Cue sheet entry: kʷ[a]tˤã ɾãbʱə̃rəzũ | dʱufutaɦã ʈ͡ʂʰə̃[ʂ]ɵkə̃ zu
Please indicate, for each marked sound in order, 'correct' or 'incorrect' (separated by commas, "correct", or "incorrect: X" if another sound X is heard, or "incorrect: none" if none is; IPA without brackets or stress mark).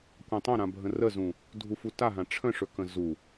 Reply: incorrect: ã, correct